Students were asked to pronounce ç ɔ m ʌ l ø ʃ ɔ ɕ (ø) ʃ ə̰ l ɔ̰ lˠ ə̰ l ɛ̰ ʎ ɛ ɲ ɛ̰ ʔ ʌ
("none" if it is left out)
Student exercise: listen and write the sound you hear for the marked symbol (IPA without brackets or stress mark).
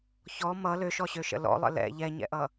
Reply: ø